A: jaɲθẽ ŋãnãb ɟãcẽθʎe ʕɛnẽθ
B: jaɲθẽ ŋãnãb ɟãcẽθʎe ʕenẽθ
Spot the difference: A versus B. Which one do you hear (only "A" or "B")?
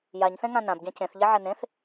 A